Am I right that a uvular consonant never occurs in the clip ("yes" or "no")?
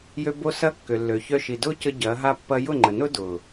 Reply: yes